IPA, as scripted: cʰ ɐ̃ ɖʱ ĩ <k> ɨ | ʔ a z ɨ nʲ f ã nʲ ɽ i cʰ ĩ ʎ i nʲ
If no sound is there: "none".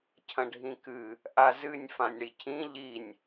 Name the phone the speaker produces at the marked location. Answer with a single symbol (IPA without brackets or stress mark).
k